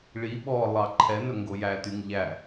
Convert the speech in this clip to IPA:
ɭi ɓɔ lˠɑǃʰɛnɵ ŋɡojætyŋ ʎæ

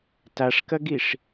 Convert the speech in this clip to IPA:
taʂkɐɡiʂ

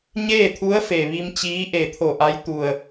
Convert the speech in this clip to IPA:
ɲeː˥˨t̪ʰu˧˥ə̯fe˩ʋi˧m t͡ɕiː˧˥ʔe˧˩t̪ʰo˧˩ʔa˧˥j t̪u˧˩ə̯

